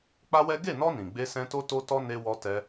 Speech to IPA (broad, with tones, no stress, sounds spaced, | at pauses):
k͡p a˦ w ɛ˦ ɡ e˦˨ n ɔ˧ n ĩ˨ ɡ͡b e˧ s ɛ̃˧ t o˦ t o˦ t ɔ˦ n e˧ w ɔ˧ t ɛ˧